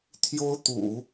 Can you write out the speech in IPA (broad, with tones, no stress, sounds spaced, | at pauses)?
t̪ʰ j o˥ ʊ̯ t̪ ṵ˨˩˦